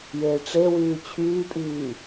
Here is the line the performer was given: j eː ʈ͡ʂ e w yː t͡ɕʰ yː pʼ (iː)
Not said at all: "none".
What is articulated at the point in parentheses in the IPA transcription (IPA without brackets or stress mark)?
iː